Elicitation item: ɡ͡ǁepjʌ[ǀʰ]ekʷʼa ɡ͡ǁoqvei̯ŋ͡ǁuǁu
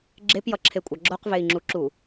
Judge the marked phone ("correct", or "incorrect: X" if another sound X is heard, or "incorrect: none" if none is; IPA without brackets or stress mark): incorrect: ǁʰ